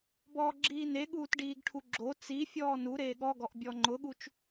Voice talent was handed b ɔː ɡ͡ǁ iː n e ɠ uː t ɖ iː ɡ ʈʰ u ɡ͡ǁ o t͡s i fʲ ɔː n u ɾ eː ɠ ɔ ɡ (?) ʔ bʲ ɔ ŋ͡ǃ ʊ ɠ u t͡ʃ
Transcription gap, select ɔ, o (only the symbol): ɔ